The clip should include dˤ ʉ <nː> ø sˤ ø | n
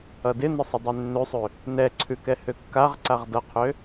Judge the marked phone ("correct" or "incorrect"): correct